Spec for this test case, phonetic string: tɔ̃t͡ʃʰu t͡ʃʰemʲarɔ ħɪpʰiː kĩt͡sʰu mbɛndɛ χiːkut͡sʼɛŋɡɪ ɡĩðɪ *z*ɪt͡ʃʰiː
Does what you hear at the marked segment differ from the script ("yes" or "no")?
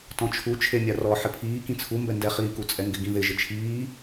yes